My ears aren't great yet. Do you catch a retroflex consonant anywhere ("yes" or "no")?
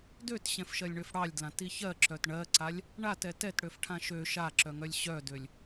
yes